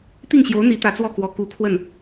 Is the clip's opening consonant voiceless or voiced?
voiceless